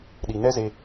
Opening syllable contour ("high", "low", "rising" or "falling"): low